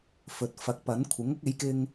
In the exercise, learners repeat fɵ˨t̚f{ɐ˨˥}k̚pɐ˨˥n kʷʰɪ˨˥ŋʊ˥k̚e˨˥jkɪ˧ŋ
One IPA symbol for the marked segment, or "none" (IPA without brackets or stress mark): ɐ˨˥